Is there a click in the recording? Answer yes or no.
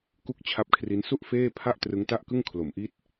no